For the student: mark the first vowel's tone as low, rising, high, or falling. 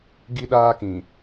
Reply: high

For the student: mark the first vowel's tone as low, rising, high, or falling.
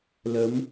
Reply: rising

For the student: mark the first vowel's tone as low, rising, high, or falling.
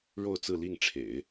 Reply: falling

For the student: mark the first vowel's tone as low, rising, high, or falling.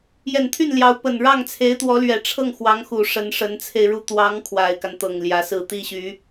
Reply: low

